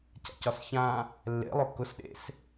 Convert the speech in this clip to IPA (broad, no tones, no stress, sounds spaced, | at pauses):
c a̰ c ɒ s ç ã | lː ḛ lˠ ʊ k ʊ s ɗ ḛ s